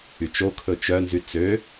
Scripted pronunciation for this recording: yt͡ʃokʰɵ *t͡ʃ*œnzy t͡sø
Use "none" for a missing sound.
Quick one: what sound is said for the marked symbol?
t͡ʃ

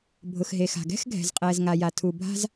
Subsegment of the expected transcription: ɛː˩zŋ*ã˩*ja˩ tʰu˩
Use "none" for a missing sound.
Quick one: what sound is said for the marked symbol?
a˩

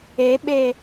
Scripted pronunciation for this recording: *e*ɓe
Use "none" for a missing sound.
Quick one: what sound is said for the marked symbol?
e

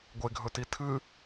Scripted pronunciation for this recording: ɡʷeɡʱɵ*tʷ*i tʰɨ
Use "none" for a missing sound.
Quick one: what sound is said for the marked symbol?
t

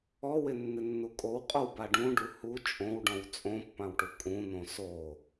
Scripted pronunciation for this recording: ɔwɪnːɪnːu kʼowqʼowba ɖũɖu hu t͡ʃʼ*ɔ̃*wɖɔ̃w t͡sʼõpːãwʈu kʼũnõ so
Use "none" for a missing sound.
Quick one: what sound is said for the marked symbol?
õ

